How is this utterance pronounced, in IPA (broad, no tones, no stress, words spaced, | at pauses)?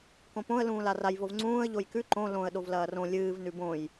kõpõə̯ lũːlaraj vovŋ͡ǀũːə̯ ʎojkʉ ǃõ lõə̯ ɗovlɐːrõ lʲɨːv nʉbõj